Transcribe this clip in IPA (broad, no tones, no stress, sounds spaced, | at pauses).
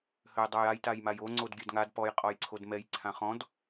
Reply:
h ø j dˤ o j a j t a j m a j o ŋ͡ǀ o d ɡʲ ø d ŋ a d p ɔ j qʼ ɔ j ǀʰ o d m ɛ j ǀʰ ã χ ɔ̃ d